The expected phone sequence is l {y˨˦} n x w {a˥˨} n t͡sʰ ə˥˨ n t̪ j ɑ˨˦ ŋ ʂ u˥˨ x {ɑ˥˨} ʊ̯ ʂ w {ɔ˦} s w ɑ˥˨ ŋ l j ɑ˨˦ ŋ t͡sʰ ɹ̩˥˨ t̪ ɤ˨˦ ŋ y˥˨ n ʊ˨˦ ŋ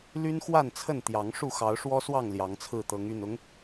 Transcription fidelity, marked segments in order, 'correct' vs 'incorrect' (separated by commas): incorrect, correct, incorrect, correct